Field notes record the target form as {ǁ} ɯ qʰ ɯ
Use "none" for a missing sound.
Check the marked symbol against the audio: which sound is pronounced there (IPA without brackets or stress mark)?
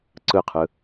ǀ